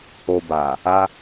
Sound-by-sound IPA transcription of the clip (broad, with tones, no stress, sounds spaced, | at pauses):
o˧ b a˨ | a˧